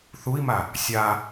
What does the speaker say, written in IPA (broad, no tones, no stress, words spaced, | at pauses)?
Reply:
θui̯ma | sʲa